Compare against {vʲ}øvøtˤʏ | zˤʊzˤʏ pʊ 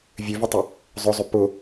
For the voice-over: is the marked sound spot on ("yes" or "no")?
yes